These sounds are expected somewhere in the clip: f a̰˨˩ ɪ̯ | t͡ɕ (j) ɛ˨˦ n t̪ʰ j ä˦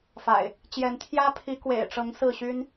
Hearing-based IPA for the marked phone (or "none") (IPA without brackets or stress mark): j